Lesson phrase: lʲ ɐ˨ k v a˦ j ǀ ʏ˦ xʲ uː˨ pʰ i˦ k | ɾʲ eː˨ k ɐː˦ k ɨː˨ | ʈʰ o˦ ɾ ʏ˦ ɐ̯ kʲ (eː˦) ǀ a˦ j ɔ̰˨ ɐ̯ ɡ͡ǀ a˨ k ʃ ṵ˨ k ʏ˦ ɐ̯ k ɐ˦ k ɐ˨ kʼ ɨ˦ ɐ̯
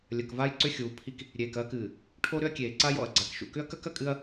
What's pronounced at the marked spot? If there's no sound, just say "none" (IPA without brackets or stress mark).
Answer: eː˨